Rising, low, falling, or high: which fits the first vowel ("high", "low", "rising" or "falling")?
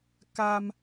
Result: high